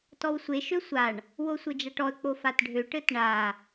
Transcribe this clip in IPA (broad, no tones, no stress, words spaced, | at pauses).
tɔwsʷe ʃøsʷaɳ | wosʷɘd͡ʒaʈɔə̯ k͡pofatɖʱø ʈɘtɳa